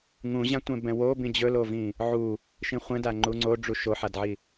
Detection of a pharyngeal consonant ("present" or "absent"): present